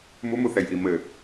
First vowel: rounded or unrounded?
rounded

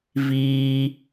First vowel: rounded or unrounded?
unrounded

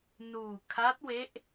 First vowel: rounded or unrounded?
rounded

